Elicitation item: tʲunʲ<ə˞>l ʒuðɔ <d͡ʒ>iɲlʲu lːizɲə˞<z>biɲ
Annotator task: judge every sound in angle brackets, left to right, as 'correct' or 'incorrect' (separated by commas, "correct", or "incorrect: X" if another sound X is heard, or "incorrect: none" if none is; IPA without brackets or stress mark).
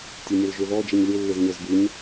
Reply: incorrect: ə, correct, correct